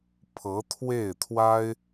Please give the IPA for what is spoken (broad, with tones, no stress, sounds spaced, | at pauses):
pʰ ɤ˧˥ t̪ʰ w e˥˩ ɪ̯ t̪ʰ w a˥ ɪ̯